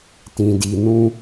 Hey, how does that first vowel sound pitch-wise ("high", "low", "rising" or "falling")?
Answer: low